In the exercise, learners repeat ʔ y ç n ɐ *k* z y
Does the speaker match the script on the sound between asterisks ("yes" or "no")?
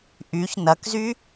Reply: yes